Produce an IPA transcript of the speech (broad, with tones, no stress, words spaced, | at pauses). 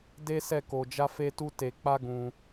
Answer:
de˦sɛ˦˨ ko˧d͡ʒa˦fe˦tu˦ te˧k͡pa˦ ɡũ˧